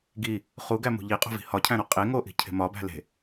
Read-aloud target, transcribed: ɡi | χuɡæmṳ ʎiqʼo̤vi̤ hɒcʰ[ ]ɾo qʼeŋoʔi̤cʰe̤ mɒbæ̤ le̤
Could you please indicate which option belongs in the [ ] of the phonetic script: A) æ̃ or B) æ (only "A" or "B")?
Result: A